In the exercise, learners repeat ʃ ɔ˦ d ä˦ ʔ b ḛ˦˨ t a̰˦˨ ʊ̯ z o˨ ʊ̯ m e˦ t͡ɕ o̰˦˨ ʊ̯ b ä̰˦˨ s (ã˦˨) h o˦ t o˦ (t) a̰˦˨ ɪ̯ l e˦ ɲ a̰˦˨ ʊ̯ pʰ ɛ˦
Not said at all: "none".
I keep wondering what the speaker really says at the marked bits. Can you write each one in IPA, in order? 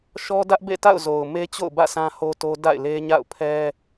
ã˦, d

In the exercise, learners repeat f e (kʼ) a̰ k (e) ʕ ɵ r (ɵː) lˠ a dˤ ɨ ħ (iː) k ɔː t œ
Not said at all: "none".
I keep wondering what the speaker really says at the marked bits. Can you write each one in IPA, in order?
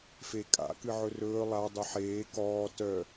kʼ, ɨ, ɵː, eː

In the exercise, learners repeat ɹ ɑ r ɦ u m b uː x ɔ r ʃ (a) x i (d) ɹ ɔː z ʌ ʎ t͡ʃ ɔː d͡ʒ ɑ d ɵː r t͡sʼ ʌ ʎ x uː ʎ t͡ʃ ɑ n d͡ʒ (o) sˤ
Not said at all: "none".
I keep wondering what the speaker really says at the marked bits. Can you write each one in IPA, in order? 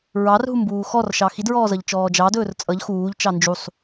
ɑ, d, u

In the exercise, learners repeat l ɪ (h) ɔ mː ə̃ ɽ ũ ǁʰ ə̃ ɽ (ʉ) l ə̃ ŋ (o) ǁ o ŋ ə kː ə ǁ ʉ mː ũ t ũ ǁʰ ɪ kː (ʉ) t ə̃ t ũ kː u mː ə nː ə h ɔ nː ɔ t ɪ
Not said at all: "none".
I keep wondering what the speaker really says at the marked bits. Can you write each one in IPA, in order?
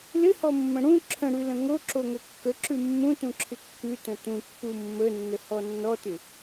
h, ʉ, o, ʉ

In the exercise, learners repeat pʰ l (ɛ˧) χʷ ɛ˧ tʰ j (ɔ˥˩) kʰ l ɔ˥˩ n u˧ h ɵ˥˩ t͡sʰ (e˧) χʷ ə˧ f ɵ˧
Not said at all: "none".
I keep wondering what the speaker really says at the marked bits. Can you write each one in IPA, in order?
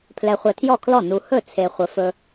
ɛ˧, ɔ˥˩, e˧

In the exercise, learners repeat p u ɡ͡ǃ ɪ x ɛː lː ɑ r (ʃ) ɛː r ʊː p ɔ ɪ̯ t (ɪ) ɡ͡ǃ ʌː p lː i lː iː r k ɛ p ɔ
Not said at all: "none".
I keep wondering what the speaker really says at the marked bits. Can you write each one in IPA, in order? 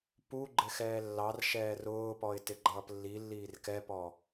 ʃ, ɪ

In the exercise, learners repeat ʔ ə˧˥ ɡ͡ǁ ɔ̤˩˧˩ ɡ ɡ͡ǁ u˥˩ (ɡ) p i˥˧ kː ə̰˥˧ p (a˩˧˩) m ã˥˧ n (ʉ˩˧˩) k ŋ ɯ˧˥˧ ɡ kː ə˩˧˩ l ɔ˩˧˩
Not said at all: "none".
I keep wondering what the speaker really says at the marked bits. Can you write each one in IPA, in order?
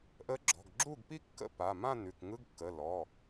ɡ, a˩˧˩, ʉ˩˧˩

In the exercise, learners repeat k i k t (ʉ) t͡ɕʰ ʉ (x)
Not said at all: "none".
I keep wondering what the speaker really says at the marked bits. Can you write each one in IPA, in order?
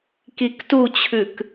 u, k

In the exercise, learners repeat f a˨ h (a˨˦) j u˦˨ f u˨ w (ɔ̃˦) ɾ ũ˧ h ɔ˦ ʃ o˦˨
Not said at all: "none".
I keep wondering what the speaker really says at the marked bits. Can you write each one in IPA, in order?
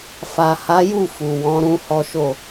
a˨˦, ɔ̃˨˦

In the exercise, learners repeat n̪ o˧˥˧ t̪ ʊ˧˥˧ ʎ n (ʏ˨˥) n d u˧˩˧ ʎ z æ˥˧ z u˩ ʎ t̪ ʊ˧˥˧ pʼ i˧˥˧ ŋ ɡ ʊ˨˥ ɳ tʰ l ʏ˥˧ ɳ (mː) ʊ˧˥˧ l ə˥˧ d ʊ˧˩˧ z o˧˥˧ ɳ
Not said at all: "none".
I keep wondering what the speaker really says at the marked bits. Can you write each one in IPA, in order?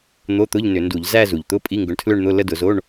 ʏ˧˩˧, n̪

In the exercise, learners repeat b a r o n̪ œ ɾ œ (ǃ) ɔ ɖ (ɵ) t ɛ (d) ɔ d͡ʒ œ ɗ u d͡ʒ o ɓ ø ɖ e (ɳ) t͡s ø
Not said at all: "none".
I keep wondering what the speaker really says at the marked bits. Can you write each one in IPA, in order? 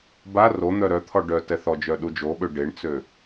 t̪ʰ, œ, θ, ɳ

